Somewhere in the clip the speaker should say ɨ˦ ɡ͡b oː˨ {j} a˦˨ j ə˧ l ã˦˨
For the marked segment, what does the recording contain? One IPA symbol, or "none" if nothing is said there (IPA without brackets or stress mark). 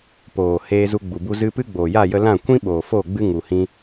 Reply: j